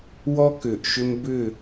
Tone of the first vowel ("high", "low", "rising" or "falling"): high